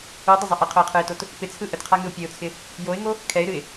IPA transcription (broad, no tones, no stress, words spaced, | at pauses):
udˤəzˤə ʔəqʰʊɪ̯qʰɯɪ̯tot | pɪt͡sʰɯ ʔətqʰaŋɨʊ̯ pʲɛʊ̯t͡sʰɪ | joɪ̯ŋo | kʰɛɪ̯ɾɨɪ̯